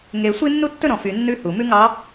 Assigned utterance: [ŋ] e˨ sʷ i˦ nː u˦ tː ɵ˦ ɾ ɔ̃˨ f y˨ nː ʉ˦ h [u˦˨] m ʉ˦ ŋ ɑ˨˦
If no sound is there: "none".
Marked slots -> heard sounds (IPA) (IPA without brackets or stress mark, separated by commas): ŋ, u˨